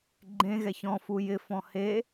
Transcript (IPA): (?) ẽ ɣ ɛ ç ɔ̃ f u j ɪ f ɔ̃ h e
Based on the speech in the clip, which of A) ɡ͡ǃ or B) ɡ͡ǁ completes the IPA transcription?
A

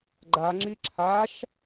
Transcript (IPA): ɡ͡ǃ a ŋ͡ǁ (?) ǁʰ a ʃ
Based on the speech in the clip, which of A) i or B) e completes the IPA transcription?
A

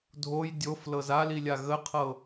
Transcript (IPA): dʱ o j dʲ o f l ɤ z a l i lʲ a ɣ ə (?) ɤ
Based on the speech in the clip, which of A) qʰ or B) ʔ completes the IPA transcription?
A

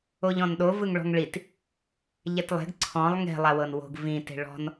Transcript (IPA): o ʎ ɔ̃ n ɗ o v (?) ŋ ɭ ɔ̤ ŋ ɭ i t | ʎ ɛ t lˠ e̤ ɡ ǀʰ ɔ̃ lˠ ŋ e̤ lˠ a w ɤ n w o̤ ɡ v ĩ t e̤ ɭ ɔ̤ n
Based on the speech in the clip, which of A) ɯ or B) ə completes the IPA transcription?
A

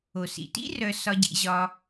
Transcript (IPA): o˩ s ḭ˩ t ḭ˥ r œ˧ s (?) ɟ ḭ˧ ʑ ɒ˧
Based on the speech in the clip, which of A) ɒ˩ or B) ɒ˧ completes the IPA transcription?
B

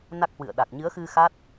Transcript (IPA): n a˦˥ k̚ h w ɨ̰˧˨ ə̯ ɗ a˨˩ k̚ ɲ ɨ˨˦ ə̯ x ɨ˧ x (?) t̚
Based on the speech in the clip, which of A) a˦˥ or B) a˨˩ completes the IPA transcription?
A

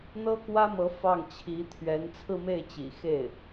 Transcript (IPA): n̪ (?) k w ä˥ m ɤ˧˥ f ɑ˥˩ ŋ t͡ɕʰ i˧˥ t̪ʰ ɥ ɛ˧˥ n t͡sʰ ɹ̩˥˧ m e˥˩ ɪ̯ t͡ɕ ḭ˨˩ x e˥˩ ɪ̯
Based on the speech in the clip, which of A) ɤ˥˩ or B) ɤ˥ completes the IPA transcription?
B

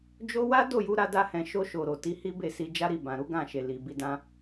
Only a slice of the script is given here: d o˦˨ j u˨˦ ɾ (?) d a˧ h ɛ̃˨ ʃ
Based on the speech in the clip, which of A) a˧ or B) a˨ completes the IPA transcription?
A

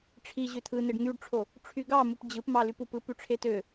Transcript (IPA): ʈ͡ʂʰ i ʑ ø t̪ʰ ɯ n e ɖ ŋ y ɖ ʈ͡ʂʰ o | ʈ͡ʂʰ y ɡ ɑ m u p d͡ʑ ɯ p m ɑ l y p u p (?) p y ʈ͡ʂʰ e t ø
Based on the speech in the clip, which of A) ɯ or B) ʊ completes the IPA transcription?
A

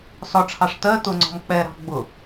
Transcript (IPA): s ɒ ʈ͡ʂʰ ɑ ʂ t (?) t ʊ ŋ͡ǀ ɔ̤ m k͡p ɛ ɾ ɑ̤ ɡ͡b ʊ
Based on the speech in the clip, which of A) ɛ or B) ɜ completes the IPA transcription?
B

